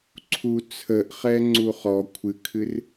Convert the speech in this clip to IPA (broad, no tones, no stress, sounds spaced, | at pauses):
ǀʰ u t͡sʰ ə ʔ χ ɛ ŋ͡ǀ u χ ɔ kʷʰ ɨ kʰ ɨ r